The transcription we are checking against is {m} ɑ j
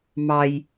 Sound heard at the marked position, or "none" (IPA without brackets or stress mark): m